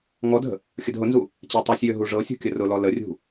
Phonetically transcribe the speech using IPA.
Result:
ŋ ɔ d ə̤ | xʲ ə d ɦ ʊ n z u | t͡ɕ æ tˤ ɤ sʲ j ø ɦ u ʐ ɤ sʲ ṳ kʲ ə r ʊ l ɔ l ə rʲ ṳ

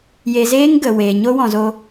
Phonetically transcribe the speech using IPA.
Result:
j e˨ z eː˦ ŋ ɡ ə˨ w e˨ ɲ o˦ w ɔ̃˨ z o˧

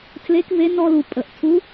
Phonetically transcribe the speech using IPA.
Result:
tʰ l e˧˥ k v e˧˥ n ɔ˧ l u˩ pʼ ə˩ ʔ tʰ u˧˥

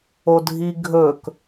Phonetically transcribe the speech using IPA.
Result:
o dʱ i ɡʱ ɵ k

